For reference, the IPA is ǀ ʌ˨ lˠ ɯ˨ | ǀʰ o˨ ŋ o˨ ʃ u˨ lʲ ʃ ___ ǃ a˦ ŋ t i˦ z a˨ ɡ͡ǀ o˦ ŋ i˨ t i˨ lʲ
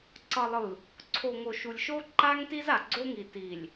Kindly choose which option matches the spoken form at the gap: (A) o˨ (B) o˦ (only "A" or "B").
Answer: B